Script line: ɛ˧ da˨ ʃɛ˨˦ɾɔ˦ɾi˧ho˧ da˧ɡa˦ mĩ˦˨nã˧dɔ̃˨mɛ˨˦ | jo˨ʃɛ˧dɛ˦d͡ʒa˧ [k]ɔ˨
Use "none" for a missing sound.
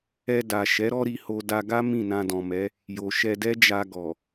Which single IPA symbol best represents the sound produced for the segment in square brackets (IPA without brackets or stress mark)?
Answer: ɡ